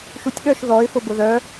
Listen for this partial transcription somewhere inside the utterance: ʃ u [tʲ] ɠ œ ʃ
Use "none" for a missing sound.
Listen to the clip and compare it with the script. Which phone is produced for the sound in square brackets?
tʲ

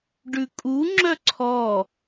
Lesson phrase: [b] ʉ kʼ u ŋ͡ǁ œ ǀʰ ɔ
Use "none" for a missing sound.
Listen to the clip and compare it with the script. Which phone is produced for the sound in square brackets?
ɖ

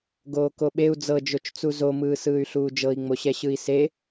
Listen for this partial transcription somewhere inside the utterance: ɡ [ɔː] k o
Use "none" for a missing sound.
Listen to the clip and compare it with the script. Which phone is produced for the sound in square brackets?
oː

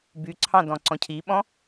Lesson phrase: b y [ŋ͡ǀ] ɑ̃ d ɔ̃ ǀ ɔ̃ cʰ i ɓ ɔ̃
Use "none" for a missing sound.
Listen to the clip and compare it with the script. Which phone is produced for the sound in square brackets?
ǀʰ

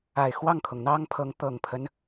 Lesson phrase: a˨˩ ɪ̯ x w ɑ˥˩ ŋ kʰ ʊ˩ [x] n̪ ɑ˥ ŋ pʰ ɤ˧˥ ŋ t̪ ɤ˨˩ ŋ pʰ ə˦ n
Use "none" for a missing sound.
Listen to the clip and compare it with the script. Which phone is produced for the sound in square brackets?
ŋ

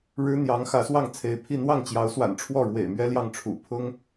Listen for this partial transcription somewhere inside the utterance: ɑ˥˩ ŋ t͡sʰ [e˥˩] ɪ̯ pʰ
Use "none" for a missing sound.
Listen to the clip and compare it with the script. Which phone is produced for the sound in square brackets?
e˧˥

